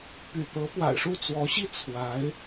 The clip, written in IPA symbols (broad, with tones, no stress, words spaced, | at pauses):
py̰˨˩t̪ɤ˧˥pwa̰˨˩ɪ̯ʂu˥˩ t͡swɔ˧˥ɕi˥ t͡sʰwa˧˥ɪ̯